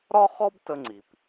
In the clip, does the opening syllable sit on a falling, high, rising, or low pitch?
high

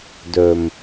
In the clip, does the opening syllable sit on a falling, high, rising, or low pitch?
low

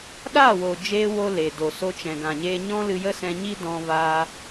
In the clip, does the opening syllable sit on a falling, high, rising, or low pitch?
falling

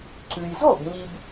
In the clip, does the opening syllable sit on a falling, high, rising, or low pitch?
low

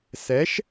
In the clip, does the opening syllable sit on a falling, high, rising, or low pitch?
rising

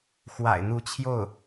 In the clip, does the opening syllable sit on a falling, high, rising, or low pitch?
low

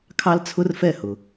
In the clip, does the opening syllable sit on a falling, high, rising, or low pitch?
high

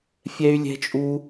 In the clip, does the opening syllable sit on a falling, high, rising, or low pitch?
high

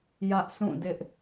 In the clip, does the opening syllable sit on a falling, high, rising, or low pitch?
high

